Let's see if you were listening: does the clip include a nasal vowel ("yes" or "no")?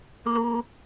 no